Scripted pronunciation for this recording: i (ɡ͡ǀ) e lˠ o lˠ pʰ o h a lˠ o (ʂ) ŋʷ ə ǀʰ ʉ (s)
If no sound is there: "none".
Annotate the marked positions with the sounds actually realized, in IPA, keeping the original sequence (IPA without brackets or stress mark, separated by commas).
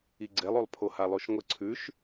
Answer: ɡ͡ǀ, ʃ, ʃ